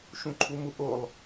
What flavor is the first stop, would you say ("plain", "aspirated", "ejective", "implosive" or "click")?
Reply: click